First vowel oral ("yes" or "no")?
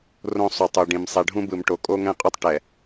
no